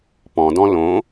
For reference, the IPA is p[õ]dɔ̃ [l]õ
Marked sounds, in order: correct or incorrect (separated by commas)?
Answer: incorrect, correct